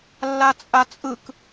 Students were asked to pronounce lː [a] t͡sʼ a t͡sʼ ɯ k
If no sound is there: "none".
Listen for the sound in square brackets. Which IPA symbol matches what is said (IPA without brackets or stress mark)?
a